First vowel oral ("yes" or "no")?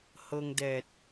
yes